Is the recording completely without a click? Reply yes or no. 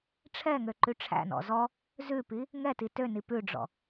no